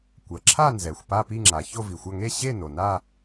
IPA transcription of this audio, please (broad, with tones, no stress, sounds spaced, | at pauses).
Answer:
kʷ ɜ˩ ǁʰ a˥˧ n z ɛ˩ xʷ p a˥˧ p i˥˧ ŋ͡ǁ a˩ ç o˥˧ v i˩ xʷ ɐ˥˧ ŋ e˥˧ ɕ e˥˧ n o˩ n a˥˧